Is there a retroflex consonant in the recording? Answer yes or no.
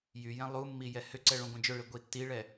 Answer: yes